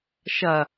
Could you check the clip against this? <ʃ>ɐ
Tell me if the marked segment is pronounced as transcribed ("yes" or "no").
yes